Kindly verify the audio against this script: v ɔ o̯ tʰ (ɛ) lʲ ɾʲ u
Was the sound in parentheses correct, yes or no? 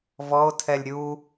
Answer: yes